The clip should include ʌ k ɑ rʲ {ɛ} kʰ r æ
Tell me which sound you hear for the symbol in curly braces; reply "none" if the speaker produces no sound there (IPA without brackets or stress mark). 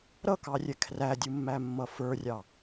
ɛ